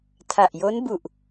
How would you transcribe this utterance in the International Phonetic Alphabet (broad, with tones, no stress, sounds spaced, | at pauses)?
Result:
tʰ a˨˩ ʔ j o˦˥ n b u˨˩ ʔ